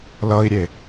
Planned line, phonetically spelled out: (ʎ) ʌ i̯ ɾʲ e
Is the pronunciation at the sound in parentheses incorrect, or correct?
incorrect